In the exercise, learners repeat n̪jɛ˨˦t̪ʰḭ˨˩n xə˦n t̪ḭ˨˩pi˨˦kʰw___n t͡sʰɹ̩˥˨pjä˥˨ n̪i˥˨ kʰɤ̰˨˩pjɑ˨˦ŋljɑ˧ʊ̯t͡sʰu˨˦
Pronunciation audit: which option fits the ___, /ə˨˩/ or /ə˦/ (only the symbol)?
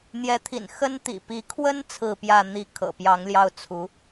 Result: ə˦